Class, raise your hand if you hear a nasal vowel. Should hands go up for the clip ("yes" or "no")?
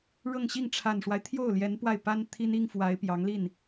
no